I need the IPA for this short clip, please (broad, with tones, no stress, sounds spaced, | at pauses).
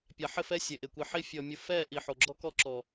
pʲ a˨ ħ ɪ˦˨ f ɛ˦ sʲ e˨ ʔ ɪ˨ kʷ i˨ ħ i˦ fʲ ɔ˦ mʲ ʊ˦ f ɛ˦˨ ʔ i˨ ħ o˨ ɡ͡ǁ ɔ˦ k ɔ˦ ǁ ɔ˨